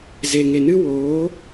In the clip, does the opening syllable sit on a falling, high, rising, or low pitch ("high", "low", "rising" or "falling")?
low